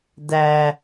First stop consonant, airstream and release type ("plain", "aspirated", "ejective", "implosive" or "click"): plain